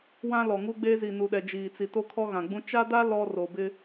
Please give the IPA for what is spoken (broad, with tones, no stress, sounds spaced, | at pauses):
w ã˦ l ɔ˨ ŋ u˦ ɡ͡b e˦ z i˨ n u˨ ɗ ɛ˨ d͡ʒ iː˨ t͡s i˨ t o˦ kʰ ɔ˦ ɣ ã˨ ɡ͡b ũ˦ t͡ʃ a˦ d a˦ l ɔ˦ r o˨ b ɪ˦